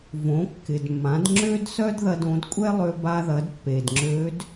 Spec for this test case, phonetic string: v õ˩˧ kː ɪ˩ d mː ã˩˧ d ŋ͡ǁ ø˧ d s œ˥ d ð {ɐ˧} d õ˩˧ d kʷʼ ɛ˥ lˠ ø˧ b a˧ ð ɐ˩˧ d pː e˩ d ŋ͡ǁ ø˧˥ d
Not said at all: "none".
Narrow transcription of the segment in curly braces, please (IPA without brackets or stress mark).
ɐ˧